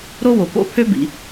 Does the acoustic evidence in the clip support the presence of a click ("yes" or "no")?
no